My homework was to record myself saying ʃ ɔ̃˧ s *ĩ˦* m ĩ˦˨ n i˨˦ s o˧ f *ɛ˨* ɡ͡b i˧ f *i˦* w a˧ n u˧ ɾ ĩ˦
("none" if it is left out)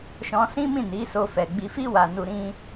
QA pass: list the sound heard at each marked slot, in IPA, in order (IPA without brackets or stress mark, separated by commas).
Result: ĩ˦, ɛ˨, i˦